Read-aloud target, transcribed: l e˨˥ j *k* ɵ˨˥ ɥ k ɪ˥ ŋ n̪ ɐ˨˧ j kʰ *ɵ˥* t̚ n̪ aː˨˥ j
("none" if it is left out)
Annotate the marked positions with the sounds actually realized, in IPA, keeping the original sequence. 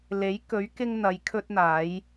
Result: k, ɵ˥

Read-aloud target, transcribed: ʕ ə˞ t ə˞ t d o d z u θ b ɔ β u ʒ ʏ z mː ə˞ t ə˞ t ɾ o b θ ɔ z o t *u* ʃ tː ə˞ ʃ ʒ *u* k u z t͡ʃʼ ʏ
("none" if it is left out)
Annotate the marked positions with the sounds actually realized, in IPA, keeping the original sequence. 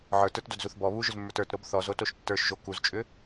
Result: o, o

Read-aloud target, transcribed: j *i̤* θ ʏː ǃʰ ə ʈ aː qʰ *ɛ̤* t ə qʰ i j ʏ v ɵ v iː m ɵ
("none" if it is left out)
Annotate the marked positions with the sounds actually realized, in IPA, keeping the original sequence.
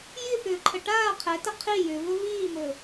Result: i, ɛ

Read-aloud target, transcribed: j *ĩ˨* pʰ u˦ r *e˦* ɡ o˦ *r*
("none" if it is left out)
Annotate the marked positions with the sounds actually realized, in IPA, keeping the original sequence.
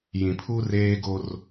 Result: ĩ˨, eː˦, r

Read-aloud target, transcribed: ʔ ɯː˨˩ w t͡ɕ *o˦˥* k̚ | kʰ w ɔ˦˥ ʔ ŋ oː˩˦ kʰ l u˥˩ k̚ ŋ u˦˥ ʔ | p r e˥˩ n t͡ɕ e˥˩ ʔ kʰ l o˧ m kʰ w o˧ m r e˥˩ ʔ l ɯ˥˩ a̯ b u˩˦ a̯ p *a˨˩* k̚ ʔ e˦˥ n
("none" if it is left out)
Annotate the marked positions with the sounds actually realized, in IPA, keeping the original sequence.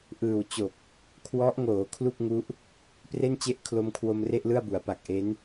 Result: o˨˩, a˨˩

